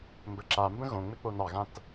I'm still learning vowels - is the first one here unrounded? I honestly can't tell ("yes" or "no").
yes